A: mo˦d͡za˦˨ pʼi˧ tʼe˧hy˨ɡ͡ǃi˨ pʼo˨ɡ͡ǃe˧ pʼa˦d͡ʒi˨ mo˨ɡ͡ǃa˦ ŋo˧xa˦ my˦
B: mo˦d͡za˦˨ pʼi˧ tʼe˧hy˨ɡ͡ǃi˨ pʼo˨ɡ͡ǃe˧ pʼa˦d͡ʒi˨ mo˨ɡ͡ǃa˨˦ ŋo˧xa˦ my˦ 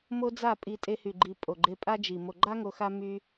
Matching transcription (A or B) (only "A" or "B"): A